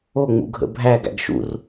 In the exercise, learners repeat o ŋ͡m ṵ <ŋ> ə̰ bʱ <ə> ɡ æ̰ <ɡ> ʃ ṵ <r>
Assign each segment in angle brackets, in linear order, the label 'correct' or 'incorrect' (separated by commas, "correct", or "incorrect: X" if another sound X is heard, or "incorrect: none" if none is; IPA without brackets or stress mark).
incorrect: ɡʱ, incorrect: æ, correct, correct